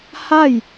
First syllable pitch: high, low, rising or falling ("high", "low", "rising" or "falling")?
falling